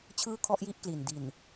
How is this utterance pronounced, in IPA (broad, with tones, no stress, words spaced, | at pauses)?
t͡ɕʰɯː˥˩kʰɔ˥˩ʔji˥˩ʔkli˨˩n di˨˩n